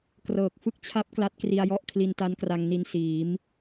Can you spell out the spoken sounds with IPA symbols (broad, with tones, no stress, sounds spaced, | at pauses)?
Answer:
k r ɤː˨˩ k̚ f ɯ˥˩ k̚ t͡ɕʰ a˦˥ p̚ k l a˦˥ t̚ k r i˧ a̯ j ɔ˥˩ ʔ kʰ l i˧ n t a˦˥ n k r a˧ ŋ n i˧ n s iː˩˦ m